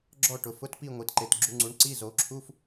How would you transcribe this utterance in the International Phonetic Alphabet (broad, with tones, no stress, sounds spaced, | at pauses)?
ɡ͡ǁ ɔ˥˧ ʈ ʊ˩˧ f ʊ˧˥˧ t p i˥˧ ŋʷ i˩˧ t ǃ e˩˧ t ɡ͡ǁ u˩˧ ŋ͡ǀ u˩˧ ɳ ǀ i˧˥˧ z o˩˧ ǁʰ u˧˥˧ f